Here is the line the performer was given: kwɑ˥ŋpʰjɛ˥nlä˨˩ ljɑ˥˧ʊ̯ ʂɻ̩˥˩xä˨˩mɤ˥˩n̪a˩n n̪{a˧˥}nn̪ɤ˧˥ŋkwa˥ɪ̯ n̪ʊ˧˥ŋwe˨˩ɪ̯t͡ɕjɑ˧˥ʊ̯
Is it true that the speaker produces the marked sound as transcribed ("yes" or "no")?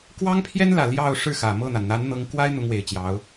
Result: yes